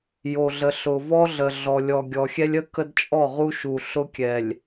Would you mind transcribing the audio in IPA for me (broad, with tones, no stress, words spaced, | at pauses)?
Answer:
jo˨ɮə˨ ɬʊ˨vɔ˦ɮə˨ ɮɔ˨lʲɔ˨ ɡʲɔ˨xʲɛ˦lʲ ə˦ kə˦dt͡ʃʼɔ˦˨ ʁu˦ʃu˨ɬʊ˦kʲɛ˨lʲ